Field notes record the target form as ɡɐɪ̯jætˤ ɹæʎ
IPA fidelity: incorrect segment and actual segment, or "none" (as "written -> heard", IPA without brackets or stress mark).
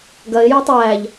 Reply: ɹ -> j